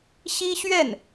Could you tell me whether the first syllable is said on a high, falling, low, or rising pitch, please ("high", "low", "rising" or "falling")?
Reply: high